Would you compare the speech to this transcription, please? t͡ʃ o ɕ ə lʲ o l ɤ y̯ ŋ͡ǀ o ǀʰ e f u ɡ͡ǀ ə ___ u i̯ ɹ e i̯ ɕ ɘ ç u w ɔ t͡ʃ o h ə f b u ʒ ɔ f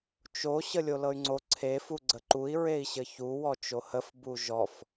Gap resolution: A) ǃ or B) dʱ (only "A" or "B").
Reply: A